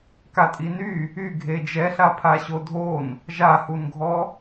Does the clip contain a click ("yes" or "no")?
no